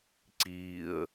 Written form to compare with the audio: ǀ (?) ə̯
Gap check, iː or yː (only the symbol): iː